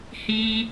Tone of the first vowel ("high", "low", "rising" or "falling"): high